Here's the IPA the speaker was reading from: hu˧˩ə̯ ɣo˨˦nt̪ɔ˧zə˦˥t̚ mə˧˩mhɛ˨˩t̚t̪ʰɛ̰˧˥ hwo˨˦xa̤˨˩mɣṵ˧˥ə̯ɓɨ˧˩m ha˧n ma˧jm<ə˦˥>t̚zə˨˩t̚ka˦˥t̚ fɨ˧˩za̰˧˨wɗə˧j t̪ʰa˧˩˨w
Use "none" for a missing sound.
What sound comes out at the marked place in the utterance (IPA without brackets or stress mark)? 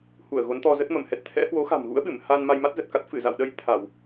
a˦˥